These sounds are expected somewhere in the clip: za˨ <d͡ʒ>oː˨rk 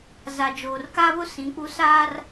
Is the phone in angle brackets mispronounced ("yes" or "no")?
no